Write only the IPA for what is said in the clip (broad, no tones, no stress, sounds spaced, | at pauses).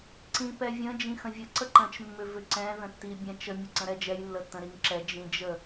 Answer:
ǀ ĩ p ɛ vʲ ə̃ d͡ʒ ĩ x ə̃ vʲ ə ǀ ə ǃ ə̃ t͡ʃ mː ʏ v ʏ ǀ ɛ̃ ð ə̃ tː i bʲ ɛ̃ t͡ʃ ə mʲ ə ǀ ə̃ ɾ ɛ d͡ʒ ɛ j lː ə tː ə̃ ɾ i ŋ ǁ ɛ d͡ʒ ĩ d͡ʒ ə